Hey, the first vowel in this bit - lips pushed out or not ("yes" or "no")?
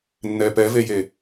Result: no